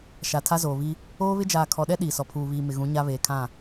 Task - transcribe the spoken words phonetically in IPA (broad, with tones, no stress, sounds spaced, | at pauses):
ʃ a˨ tʰ a˦ z oː˨ β i˦ | oː˦ β ɪ˦ d͡ʒ aː˨ kʰ ɔ˨ ɗ ɛ˦ ɗ iː˨ s ɔ˨ pʰ uː˨ β iː˨ m ɪ˨ ɣ ũ˨˦ ɲ a˦ β eː˨ kʰ ã˦˨